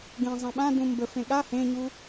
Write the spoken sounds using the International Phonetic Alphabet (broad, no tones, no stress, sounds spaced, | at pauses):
ɡ ẽ zˤ ã ɓ ã d ũ m b ə f ẽ ɠ a h ẽ ɲ u